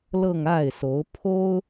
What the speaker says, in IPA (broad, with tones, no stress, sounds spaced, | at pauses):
l ɤ˥˧ ŋ a˥˩ ɪ̯ s o˧˥ ʊ̯ pʰ o˥ ʊ̯